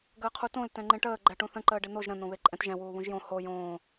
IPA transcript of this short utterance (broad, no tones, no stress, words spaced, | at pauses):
ɡəːqʰutõl tɛ̃ŋ͡ǃẽʈəː ɡ͡ǃɛʈũθə̃ ǃəːɖɪn̪oʒ ɾə̃ n̪õβeǃʼɛ̃tʒɛ̃ wuːβũʒjõ ho jõː